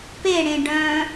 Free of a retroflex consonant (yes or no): no